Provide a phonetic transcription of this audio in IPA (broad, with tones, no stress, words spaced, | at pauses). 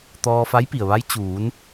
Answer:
t̪ɔː˧fa˧˥jpi˩ə̯ʋa˧˥j t͡ɕuː˩˧n